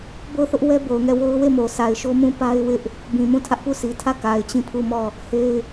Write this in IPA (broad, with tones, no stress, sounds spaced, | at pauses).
b o˦˨ ʊ̯ θ ʊ˦ ʔ w ɛ˦ b o˨ ʊ̯ ŋ ɛ˦˨ w o˦ ʊ̯ w e˦˨ m o˨ sʰ a˨ ɪ̯ ʃ o˦ m ũ˦˨ p a˦ ɪ̯ w ɪ˦ ʔ | b ĩ˨ m ũ˦˨ tʰ ä˦ ʔ p u˦˨ sʰ i˨ tʰ ä˦˨ k a˨ ɪ̯ t͡ɕ ĩ˦˨ pʰ u˦˨ m ɔ˦˨ | h e˦ ɪ̯